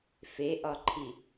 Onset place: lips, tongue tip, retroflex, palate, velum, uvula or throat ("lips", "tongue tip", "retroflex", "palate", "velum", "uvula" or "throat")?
lips